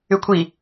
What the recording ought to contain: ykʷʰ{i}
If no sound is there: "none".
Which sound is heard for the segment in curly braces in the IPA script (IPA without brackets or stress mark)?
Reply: i